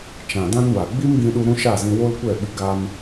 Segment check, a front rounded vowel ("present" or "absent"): absent